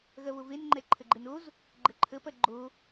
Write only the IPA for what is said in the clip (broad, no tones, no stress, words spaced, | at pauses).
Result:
ɣɐβovenŋ͡ǃɛ ǃʰəɡ͡ǃenoz | ɡ͡ǃəǃʰəpɐ ɡ͡ǃo